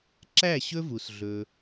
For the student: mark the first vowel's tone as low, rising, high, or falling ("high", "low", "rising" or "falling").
falling